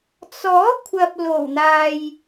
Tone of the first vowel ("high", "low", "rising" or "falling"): rising